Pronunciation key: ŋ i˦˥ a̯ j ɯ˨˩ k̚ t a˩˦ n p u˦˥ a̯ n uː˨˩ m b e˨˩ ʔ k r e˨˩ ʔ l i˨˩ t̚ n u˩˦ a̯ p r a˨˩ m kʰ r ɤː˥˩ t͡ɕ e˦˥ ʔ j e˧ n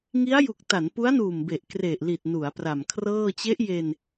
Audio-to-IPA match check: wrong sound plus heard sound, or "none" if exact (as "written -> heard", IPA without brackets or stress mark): ɯ˨˩ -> u˨˩